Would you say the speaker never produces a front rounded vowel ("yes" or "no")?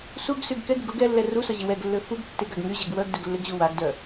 no